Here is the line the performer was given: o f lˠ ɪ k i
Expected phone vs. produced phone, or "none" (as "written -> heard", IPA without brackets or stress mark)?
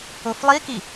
ɪ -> i